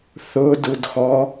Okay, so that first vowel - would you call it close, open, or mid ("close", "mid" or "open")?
close